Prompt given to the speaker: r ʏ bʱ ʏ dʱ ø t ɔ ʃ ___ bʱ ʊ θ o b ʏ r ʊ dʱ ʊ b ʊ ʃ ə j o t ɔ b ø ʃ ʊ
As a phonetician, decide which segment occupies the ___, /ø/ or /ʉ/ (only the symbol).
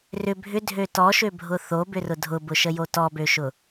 ø